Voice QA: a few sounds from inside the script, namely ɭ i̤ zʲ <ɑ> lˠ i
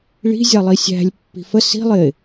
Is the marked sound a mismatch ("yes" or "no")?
no